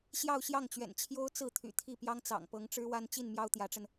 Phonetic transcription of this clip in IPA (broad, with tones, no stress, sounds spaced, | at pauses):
ɕ j ɑ˥˧ ʊ̯ ɕ j ɑ˥˩ ŋ t͡ɕ ɥ ɛ̰˨˩ n t͡ɕʰ j o˥ ʊ̯ t͡s ɹ̩˥˩ t̪ʰ y̰˨˩ t̪ʰ i˥˩ p j ɑ˥ ŋ t͡s ɑ̰˨˩ ŋ p ɤ˧˥ ŋ ʈ͡ʂ ɻ̩˥ w a˥ n t͡ɕ i˥˩ n m j ɑ˥ ʊ̯ t̪ j ä˧˥ ʈ͡ʂ ə˧ n